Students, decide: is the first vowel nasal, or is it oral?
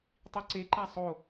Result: oral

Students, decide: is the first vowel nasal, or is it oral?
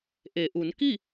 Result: oral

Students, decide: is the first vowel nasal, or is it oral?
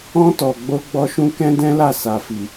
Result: nasal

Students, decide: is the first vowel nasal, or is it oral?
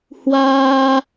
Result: oral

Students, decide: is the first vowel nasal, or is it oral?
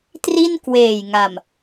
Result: oral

